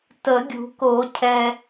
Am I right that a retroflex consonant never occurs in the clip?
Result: yes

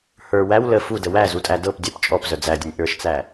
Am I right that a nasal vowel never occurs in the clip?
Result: yes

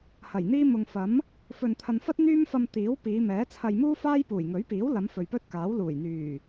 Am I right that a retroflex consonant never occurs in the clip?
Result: yes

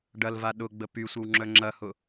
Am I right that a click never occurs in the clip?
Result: no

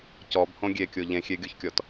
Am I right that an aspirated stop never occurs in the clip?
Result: yes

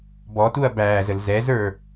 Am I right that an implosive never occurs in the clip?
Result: yes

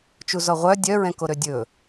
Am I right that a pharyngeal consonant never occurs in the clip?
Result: yes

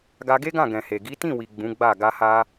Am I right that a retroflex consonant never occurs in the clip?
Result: yes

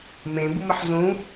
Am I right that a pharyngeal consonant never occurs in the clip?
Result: no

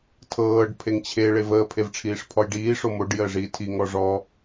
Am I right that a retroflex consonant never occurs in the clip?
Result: no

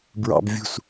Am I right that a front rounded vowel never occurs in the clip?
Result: yes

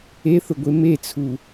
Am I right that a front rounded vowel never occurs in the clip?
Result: yes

